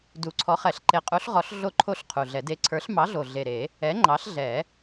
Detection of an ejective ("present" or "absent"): present